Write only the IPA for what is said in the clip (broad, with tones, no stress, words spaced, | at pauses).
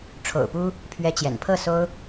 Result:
ʈ͡ʂʰo̰˨˩ʊ̯ pu˥ | pʰɥɛ˧˥t͡ɕjɛ̰˨˩n pʰɤ˥˩so˥ʊ̯